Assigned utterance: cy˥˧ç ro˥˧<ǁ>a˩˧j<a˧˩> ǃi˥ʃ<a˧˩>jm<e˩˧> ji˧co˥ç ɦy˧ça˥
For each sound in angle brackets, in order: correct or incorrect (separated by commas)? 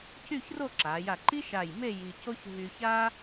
correct, correct, correct, incorrect